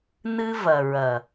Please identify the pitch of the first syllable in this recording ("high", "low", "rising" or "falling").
high